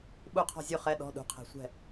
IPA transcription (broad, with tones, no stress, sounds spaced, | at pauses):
ɓ u˥˨ qʰ ɔ̤˥˨ zʲ u˥˨ χ ɛ˧˥˧ ɗ ɔ̤˧˥˧ ɗ ṳ˧˩ qʰ ɛ̤˧˩ sʷ ɛ̤˥˨